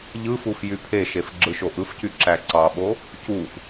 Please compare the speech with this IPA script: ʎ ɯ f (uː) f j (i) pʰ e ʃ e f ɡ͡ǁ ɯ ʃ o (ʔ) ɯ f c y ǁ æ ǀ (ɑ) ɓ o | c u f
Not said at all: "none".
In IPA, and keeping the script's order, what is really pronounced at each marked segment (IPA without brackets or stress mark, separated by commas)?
u, y, ʔ, ɑ